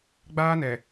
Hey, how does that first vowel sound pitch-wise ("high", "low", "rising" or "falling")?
high